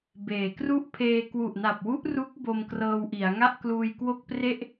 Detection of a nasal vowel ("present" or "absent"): absent